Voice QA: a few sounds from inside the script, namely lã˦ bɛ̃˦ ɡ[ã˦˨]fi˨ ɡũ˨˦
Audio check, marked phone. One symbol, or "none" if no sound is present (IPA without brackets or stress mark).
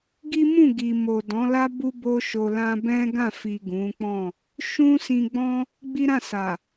ã˦˨